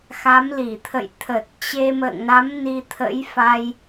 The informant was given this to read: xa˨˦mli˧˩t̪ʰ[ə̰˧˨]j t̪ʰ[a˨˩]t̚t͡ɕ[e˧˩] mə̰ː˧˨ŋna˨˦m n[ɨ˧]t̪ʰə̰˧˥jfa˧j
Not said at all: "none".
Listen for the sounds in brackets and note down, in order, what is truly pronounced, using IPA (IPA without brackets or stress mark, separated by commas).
ə̰˧˨, ə˨˩, e˧, i˧